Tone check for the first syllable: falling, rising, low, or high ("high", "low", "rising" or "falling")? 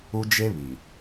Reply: high